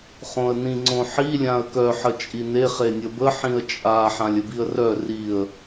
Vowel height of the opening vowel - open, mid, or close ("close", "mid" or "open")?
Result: mid